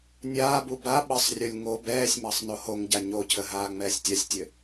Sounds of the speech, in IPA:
nʲ aː b u b a ɓ ə sˤ rʲ o lʲ ŋ o b ɛː sʲ m ɑ sˤ n o h o ŋ ɟ a ɲ o cʰ ə ɦ aː ŋ͡m ɛː sʲ tʲ a sʲ tʲ ɘ

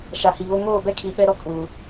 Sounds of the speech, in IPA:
ʃ a˨ h i˨ β o˦ ŋ oː˦˨ b ɛ˦ kʰ i˨ ɓ ɛ˦ ɾ ɔ˦ kʼ u˨

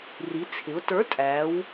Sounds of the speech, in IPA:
r i˩˧ t͡sʰ ɪ˩˧ ʊ̯ t ə˞˨˥ tʼ æ˩˧ w

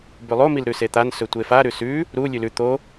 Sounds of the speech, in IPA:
b ʉ lˠ o m i l ɾ ʉ s e t̪ a n s ɵ tʷ e f a ɾ ʉ s ʉ | ɾ u lʲ ʉ l ʉ t̪ o

